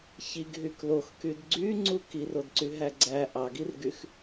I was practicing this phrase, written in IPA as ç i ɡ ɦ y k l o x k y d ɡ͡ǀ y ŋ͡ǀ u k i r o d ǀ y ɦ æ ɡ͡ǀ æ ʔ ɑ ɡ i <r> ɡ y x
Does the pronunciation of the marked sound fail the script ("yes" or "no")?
no